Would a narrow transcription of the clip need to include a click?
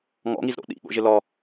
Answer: no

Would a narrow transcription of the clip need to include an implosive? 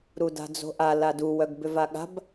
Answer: yes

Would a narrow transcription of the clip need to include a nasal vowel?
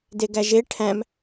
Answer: yes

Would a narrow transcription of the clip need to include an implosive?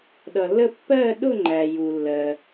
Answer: yes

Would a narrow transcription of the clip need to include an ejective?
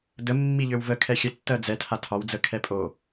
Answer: yes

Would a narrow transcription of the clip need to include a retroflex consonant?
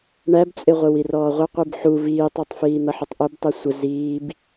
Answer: yes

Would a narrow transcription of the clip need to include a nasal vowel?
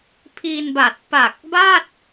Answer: no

